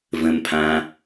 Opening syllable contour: low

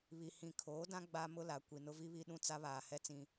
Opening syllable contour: low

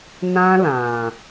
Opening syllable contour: high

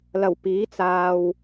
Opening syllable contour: low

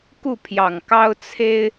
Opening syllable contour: falling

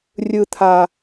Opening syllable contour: low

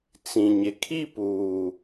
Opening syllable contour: low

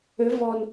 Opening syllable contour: rising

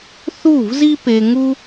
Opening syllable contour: falling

